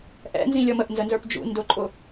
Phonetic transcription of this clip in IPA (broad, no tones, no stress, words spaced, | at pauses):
ʔɛ̰nzĩ lʲɔməʔnzə nzə˞pd͡ʒṵ ndʊǃʼʊ